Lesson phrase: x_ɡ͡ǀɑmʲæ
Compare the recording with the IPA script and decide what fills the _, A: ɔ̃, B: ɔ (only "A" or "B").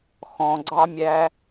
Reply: A